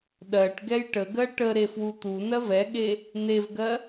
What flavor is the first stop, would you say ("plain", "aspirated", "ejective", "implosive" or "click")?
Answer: implosive